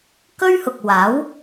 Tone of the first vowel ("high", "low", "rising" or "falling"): high